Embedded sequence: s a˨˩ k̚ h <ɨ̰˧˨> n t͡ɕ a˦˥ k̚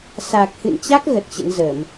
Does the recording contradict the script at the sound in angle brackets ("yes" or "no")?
no